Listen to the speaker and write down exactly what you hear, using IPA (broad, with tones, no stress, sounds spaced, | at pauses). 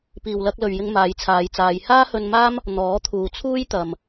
p iː˨ w l ɐ˧ k̚ l ɵ˨ ɥ j ɪ˧ ŋ m aː˨˧ j t͡sʰ aː˨˧ j t͡s aː˨˧ j h aː˥ h ɵ˧ n m aː˥ m | n̪ ɔː˨˥ t̪ʰ uː˨ t͡sʰ uː˥ j t̪ ɐ˨ m